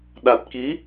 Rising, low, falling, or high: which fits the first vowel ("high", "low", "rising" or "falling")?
low